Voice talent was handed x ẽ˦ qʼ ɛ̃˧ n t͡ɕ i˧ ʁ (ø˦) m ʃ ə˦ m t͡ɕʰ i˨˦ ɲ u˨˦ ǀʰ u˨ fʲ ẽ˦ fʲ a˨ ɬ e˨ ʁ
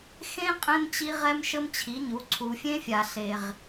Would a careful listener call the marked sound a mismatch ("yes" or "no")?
yes